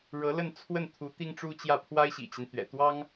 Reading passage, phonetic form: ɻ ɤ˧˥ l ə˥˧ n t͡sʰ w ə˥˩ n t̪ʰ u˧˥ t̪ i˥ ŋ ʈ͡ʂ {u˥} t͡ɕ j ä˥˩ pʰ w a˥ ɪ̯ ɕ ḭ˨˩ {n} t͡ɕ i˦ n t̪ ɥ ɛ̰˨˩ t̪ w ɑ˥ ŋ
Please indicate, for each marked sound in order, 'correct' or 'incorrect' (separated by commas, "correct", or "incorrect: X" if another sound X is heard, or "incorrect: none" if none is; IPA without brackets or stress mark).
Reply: correct, incorrect: none